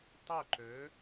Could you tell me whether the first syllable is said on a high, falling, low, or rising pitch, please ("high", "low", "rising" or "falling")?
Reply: falling